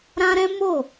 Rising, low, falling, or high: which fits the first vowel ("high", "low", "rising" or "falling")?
high